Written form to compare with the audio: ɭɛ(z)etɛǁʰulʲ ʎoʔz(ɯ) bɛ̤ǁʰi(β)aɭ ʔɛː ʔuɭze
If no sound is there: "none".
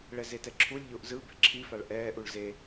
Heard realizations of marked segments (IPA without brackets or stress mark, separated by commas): z, ɯ, f